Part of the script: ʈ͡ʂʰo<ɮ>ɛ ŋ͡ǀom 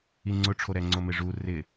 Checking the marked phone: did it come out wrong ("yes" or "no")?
yes